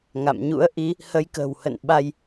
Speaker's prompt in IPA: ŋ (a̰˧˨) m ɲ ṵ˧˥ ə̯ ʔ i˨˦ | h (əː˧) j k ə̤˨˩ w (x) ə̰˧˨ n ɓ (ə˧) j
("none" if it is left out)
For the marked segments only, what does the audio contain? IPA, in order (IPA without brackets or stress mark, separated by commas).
a̰˧˨, ə˧, h, a˧